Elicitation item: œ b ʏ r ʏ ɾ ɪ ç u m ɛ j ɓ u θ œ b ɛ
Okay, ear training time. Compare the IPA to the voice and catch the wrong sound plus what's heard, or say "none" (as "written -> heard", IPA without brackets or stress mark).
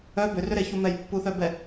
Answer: ɓ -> pː